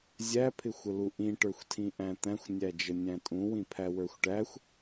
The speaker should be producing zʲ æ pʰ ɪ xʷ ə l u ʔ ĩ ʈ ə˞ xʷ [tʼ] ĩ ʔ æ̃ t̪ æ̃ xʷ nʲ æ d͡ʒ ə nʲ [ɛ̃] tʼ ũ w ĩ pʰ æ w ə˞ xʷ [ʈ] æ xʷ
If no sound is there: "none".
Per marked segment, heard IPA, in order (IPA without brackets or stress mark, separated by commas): tʰ, æ̃, ʈ